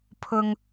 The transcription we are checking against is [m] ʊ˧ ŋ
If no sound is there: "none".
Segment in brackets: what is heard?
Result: pʰ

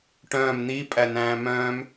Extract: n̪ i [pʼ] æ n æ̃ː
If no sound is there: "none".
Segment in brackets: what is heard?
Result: pʼ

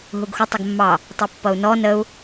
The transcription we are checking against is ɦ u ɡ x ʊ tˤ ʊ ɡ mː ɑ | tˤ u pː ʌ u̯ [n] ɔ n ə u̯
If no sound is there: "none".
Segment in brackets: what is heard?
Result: n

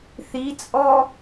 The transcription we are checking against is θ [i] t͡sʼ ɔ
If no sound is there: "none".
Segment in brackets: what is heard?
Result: i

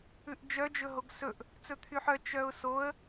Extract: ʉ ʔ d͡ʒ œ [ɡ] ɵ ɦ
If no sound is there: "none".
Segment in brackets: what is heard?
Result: d͡ʒ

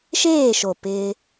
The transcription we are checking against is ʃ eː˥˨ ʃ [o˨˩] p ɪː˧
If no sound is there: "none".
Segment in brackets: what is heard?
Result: o˨˩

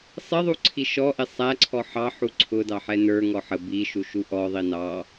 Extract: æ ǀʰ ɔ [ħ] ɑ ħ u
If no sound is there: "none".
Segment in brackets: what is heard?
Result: ħ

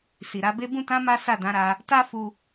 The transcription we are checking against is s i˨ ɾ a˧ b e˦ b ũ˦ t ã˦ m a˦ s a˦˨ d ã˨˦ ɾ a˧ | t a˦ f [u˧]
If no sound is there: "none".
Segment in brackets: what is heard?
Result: u˧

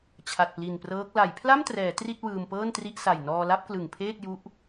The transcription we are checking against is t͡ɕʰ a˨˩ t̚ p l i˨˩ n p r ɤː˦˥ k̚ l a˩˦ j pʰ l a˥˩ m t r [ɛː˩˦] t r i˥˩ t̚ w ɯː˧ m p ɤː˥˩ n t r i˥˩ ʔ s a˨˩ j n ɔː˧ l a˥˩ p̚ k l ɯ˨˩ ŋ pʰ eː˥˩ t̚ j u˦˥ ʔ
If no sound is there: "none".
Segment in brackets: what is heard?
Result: ɛː˩˦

